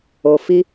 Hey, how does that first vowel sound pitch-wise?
low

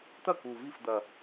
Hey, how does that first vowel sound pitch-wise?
falling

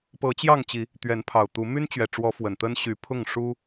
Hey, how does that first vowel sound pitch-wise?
rising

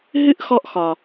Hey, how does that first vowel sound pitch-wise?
high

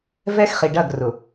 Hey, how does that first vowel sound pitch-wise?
high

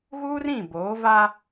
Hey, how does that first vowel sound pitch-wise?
high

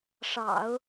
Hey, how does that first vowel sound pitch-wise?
low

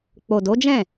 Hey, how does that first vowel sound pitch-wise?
low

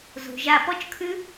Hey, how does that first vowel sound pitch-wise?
low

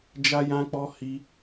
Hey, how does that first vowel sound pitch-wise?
high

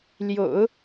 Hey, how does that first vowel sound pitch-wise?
low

